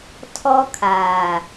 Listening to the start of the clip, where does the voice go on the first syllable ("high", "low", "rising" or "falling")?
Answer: high